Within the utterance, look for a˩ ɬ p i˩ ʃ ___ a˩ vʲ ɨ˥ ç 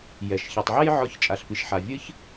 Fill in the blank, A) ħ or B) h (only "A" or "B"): A